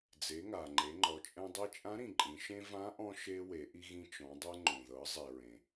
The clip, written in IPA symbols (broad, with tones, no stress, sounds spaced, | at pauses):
d͡z e˩˧ ŋ a˩ ŋ͡ǃ e˩˧ ŋ͡ǃ ɔ˩˧ t͡ʃʼ ɛ̃˧ dˤ i˧ t͡ʃʼ ã˧˥ ɾ ĩ˩ ǃʼ ĩ˩˧ ʃ ẽ˥ v ã˧˥ ʔ ɔ̃˧ ʃ e˧ w e˩˧ ʔ i˧ ɣ ĩ˧ t͡ʃ ɔ̃˩˧ dˤ ɛ˧ ŋ͡ǃ õ˩ ð ɤ˩˧ zˤ i˩ ɹ ẽ˩